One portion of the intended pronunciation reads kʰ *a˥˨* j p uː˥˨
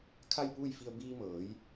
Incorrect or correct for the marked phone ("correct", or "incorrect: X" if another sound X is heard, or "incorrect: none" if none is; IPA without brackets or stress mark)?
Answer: correct